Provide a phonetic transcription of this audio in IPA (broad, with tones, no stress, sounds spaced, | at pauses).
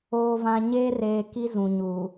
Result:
oː˨ v ã˨ ɲ eː˦ r eː˨ k i˦ z ũ˨ ɲ u˨